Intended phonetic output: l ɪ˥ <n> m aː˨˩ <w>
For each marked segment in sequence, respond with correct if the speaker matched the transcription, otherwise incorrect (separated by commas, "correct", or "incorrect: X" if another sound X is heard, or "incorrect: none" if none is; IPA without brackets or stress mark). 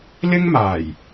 incorrect: ŋ, incorrect: j